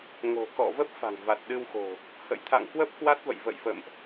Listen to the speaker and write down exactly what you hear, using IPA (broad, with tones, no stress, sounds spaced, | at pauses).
ŋ o̤˨˩ k ɔ̰˧˨ v ə˦˥ p̚ f a̤˨˩ ŋ v a˨˩ t̚ ɗ ɨ˧ w x o̤˨˩ | h ə̰˧˨ j t̪ʰ a̰˧˨ ŋ k w ə˦˥ p̚ k w a˦˥ t̚ v ə̰˧˨ j v ə̰˧˨ j f ə̰˧˨ m ʔ